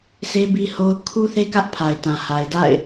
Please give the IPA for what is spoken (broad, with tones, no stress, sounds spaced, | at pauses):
sʰ e˦ b i˦ h o˦ ʊ̯ kʰ u˦ θ e˦ k ä˦ ʔ pʰ a˨ ɪ̯ t ã˨ h a˨ ɪ̯ d a̰˦˨ ɪ̯